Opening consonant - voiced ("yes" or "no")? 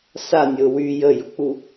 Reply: no